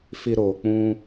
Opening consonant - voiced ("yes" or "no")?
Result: no